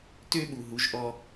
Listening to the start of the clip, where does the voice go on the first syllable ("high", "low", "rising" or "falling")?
high